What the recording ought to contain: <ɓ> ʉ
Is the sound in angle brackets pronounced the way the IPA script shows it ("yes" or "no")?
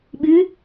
yes